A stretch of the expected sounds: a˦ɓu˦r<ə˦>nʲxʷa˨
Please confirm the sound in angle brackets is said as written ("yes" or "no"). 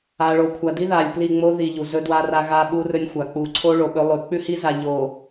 no